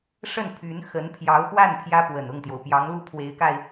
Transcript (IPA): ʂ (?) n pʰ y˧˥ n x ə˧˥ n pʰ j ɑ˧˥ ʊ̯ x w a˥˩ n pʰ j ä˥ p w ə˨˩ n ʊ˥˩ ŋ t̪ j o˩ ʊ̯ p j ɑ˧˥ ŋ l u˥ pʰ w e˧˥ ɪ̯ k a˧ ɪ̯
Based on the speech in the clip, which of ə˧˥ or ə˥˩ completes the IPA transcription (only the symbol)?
ə˥˩